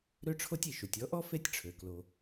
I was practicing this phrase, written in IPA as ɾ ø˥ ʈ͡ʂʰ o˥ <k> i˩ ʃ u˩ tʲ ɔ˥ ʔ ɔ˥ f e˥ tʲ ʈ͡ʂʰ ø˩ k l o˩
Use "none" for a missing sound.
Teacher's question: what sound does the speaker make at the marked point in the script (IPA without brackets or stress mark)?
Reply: tʲ